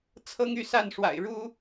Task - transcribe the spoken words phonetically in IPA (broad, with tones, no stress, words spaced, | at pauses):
t͡sʰɤ˦ŋy˥˨sa˥˨nʂwa̰˨˩ɪ̯ ɻu˦